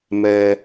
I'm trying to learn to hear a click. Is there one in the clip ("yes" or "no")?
no